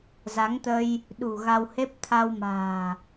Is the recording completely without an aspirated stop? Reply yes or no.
no